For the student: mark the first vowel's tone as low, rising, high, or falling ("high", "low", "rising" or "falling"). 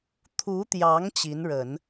rising